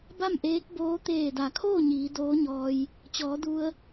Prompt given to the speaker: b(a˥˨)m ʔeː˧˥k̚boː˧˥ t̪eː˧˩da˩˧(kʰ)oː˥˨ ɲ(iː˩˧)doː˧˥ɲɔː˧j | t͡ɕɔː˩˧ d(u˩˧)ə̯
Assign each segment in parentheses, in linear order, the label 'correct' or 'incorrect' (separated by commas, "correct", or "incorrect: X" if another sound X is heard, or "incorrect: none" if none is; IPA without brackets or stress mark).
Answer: correct, correct, correct, incorrect: u˧